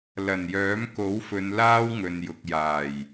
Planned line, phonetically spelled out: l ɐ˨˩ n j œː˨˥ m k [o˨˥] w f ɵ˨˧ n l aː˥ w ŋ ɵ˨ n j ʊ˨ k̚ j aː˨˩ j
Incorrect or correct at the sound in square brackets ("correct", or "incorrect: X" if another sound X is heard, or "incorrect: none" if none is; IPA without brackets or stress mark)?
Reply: correct